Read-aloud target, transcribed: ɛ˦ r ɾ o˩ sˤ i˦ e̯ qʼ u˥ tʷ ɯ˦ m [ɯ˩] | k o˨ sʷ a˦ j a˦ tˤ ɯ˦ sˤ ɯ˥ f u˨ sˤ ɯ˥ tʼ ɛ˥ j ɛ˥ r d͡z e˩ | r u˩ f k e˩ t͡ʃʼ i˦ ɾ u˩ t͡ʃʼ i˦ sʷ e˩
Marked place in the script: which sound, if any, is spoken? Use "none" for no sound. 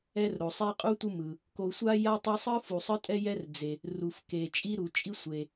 ɯ˩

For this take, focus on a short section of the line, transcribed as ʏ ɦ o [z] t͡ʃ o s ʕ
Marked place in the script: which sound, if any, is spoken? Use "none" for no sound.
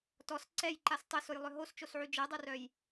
s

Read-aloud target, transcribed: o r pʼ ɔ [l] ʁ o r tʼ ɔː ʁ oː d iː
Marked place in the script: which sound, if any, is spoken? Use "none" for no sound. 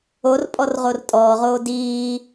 r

